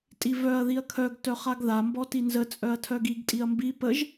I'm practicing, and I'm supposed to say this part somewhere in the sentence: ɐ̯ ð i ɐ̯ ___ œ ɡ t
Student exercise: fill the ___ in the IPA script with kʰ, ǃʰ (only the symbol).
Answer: kʰ